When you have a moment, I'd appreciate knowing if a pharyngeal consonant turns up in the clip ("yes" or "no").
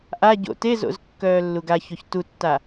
no